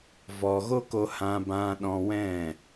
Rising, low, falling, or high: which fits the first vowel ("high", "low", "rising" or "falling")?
low